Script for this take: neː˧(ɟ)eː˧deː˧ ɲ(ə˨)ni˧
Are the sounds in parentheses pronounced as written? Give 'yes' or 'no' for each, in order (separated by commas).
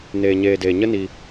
no, no